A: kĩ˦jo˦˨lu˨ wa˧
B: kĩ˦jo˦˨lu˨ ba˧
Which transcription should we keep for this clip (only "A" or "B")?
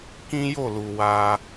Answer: A